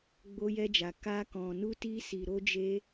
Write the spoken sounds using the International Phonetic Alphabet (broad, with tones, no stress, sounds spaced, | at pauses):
ɡ͡b o˧ j ɛ˧ d͡ʒ a˨ k a˧ k ɔ̃˨ n u˧ t i˧ s i˨ ɾ o˧ d͡ʒ e˧